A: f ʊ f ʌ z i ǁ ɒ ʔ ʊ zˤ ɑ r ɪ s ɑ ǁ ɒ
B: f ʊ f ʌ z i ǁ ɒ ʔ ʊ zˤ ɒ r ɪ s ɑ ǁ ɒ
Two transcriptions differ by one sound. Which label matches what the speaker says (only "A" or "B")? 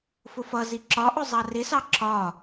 A